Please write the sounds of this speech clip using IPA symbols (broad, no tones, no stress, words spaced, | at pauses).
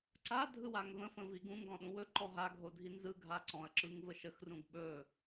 ǀadʱɯwaŋ və̃fə̃vi ɡũŋɡɔ̃ɗũ wɵǃɔ ɦaɡʱodʱi nzɯɡʱa ǀɔ̃ɐ̯ǁɯŋvə ʃəxrũɡ ɓɵ